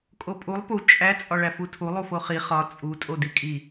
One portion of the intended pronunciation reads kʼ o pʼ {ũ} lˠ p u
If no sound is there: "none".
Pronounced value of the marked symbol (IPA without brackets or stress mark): u